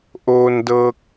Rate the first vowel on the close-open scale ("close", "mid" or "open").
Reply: mid